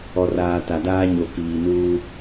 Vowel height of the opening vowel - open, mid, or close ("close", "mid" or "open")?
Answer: mid